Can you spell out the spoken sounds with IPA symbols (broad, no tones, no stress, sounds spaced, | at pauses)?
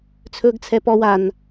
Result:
t͡sʰ ɵː ɡ t͡sʰ ɛ p ɔ w a n